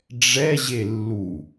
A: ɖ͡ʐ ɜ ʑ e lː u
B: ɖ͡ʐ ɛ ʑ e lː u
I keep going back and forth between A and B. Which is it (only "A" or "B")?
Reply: B